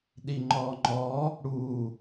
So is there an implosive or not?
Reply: yes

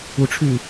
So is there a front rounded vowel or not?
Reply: yes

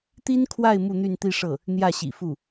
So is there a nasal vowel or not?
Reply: no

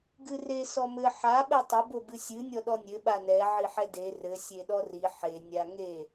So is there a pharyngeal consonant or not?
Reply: yes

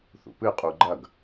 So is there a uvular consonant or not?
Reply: yes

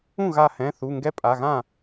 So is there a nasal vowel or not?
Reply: yes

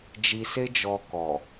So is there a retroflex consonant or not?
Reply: no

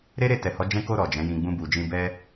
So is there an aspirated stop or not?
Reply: no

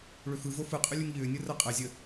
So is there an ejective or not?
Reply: yes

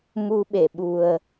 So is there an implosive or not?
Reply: yes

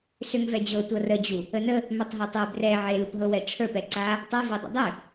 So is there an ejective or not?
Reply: no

